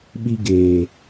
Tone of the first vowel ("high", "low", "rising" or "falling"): high